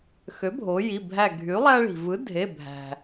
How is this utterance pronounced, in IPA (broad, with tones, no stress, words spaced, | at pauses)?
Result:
xø˩˥bʱo˩˧ji˩˧˩ bʱæ˧˩ɡʱy˩˥lˠæ˦ɭi̤˩ vɯ˩˥dʱe˩˧˩bʱæ̤˩